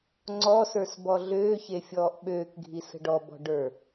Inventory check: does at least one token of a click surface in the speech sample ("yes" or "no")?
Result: yes